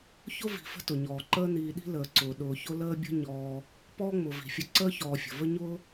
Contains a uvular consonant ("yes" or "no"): no